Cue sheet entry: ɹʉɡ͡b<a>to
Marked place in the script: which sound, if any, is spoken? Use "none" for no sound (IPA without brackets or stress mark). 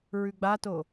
a